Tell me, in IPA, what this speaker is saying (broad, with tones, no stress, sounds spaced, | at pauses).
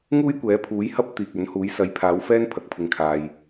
ŋ uː˥ j kʷ ɛː˨˥ pʰ uː˨˥ j h ɐ˥ p̚ t̪ iː˨ k̚ ɵ˨˥ n h uː˨˥ j s ɐ˨˧ j pʰ aː˨˧ w f ɛː˥ n pʰ ɐ˨˥ k̚ pʰ ɪ˨ ŋ kʰ aː˨ j